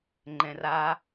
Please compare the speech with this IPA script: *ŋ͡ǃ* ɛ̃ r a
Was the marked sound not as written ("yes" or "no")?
no